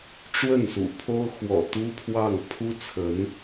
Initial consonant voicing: voiceless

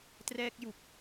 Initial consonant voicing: voiceless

